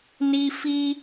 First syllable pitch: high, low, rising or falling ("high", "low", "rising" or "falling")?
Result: high